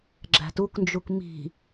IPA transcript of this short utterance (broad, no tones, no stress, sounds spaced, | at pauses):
ɡ͡ǁ æ̤ t u k n d͡ʒ u k m i̤